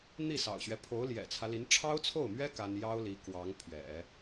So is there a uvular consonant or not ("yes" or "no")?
no